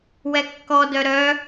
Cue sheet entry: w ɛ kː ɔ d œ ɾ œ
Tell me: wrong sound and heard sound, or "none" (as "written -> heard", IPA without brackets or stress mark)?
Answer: none